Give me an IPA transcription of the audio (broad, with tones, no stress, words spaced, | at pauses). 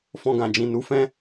fɔ̃˧ɡã˨d͡ʒĩ˨ nu˨˦fɛ̃˦